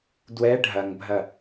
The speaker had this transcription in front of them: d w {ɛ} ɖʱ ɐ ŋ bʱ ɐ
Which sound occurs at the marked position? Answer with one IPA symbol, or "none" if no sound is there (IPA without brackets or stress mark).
ɛ